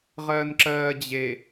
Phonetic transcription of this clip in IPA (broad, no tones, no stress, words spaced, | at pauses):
ʁɜːnǁɜːd͡ʑe